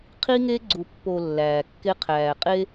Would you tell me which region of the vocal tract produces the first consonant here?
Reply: uvula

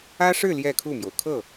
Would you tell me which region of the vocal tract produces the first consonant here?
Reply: retroflex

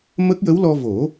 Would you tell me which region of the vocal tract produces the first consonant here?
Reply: lips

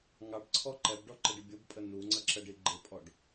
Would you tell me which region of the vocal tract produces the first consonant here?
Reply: velum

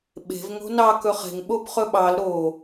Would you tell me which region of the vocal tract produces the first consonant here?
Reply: lips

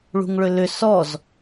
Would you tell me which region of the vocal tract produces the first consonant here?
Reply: retroflex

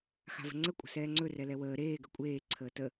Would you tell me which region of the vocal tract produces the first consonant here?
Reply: velum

